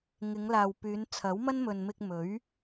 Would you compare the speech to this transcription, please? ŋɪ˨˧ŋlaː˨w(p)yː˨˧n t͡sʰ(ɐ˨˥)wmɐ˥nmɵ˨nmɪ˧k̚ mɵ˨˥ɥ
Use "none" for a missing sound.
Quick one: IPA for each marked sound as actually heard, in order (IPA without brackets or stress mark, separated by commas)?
p, ɐ˨˥